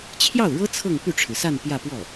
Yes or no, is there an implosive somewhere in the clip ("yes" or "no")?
no